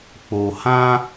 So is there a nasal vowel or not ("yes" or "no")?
yes